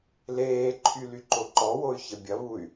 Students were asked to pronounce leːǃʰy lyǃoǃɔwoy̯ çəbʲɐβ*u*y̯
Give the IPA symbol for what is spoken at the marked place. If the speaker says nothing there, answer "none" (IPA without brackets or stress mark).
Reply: u